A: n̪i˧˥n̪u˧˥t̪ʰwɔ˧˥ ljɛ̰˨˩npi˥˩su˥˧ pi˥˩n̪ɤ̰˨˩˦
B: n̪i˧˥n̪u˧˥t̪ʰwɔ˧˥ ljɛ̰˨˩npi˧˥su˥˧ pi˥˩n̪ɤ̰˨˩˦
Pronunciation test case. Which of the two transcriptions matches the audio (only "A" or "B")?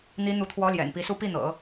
B